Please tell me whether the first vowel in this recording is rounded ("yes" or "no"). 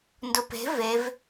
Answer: yes